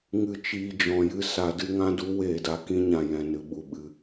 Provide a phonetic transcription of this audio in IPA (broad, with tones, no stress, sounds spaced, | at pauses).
ŋ ɨ˨ t͡ʃ iː˨ d͡ʒ ɔ̃˨ j ɨ˧ s a˨ d ɨ˧ ŋ ã˦ d u˨˦ w eː˨ d a˨ k ĩ˦ ɲ ã˨ j ɛ̃˨ n ɨ˨ ɓ u˨ ɓ ɨ˧